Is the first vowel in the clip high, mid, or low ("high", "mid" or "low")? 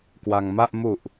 low